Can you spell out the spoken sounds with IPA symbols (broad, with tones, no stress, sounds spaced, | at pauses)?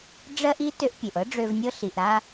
ɖ͡ʐ ɜ˥ ʔ i˥ t ø˧ ʔ pʲ ø˩ ʔ ɤ˥ ɖ͡ʐ ø˧ v nʲ ɤ˥ ɬ i˩ ʔ ɾ a˧